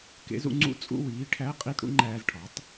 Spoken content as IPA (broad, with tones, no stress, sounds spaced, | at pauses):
k ḛ˩˥ z ṵ˧ ŋ͡ǀ ṵ˦˥ t͡sʼ ṵ˧˥˧ w iː˩˥ ʈʰ æ˧˥˧ qʼ i˧˥˧ t ɽ ṵ˩˥ ŋ͡ǃ æː˧ z ʈʰ ɒ˩˥ tˤ